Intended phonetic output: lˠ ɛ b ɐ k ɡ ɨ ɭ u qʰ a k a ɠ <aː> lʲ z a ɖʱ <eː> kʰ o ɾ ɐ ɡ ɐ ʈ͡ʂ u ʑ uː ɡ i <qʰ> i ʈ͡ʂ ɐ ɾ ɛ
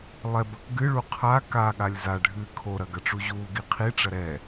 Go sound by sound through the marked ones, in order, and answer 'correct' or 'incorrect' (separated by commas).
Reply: incorrect, incorrect, correct